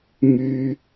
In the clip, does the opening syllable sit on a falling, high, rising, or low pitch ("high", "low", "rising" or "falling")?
high